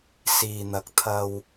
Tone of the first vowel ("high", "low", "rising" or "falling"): low